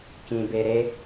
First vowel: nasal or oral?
nasal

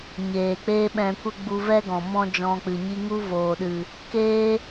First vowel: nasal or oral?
oral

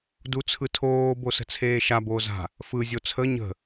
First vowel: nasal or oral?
oral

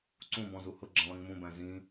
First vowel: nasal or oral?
nasal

